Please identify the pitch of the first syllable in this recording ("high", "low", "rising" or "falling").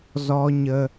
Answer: high